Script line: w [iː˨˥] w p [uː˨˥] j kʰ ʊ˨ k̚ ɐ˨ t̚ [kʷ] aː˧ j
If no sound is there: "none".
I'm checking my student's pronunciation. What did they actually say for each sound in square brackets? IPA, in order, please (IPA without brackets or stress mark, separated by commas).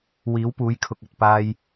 iː˨˥, uː˨˥, p